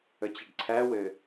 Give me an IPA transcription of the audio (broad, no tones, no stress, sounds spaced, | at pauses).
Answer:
ə t͡ɕ ɘ ɖ ǀʰ æ w ɘ